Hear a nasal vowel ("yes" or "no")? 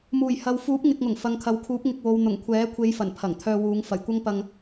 no